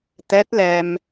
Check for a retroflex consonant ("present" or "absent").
absent